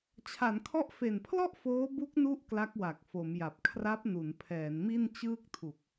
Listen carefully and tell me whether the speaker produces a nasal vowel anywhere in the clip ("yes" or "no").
no